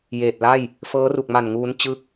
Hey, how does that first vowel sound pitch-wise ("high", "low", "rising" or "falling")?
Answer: low